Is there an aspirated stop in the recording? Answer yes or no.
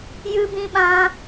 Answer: no